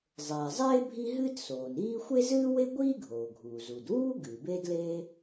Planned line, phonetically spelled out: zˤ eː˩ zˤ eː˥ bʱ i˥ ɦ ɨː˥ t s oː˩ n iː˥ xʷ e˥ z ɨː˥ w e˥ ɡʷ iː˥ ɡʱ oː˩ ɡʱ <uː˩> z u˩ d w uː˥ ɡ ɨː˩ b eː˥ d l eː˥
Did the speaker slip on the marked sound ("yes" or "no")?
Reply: no